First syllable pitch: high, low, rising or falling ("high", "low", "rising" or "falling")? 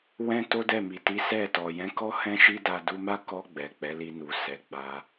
high